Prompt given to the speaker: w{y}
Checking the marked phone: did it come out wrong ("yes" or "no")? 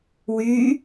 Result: no